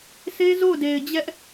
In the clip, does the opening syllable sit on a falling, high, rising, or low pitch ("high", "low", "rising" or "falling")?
high